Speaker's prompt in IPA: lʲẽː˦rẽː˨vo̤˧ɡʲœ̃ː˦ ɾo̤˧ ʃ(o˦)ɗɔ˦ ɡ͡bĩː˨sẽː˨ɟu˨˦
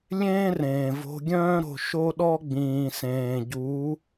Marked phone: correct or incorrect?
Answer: correct